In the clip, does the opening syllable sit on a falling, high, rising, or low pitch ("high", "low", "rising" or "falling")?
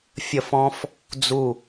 falling